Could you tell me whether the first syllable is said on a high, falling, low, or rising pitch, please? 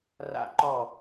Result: falling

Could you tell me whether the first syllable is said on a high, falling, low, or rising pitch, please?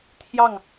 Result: falling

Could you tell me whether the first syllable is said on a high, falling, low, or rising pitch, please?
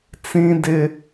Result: high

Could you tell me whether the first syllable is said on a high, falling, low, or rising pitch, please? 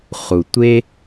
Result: low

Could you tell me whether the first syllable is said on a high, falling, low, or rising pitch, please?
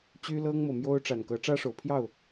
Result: high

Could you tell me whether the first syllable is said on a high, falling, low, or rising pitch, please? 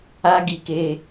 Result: high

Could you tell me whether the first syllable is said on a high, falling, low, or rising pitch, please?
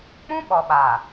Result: high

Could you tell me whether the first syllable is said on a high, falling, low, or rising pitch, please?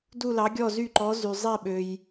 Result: falling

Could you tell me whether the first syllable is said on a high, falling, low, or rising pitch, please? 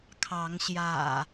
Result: rising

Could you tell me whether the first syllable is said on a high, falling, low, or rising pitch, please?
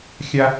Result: high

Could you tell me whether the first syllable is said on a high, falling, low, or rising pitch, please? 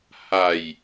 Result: low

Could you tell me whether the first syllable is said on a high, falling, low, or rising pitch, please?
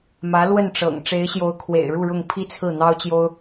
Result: rising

